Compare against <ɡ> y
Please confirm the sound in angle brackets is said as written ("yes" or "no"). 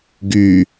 yes